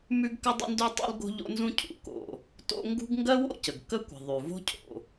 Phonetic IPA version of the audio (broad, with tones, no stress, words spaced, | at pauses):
mʉ˥ɡkə˥dˤə̰˥ndʉ˥ tˤṵ˥l ɡo̤˥ʎo̰˥nzũ˥ cʰṵ˩ ko̰˩ | to̰˥ ŋɡṳ˥ɡ ŋɡɜ˥wo̰˥cə˩ɡ kə˥kʷə̤˩ ðˤʉ˩vo̤˥cʰo̰˩